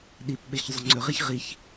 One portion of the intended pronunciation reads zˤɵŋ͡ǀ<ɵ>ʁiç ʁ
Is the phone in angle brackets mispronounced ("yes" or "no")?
no